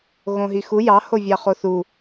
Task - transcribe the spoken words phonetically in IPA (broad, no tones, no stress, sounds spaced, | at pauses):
ɣ õ ɦ i x u j ɑ h o vʲ ɑ χ o θ u